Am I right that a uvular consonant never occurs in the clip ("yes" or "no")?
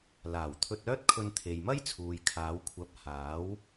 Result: yes